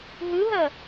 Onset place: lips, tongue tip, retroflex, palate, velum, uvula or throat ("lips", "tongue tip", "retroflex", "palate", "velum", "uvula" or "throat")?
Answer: throat